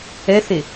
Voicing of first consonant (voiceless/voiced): voiceless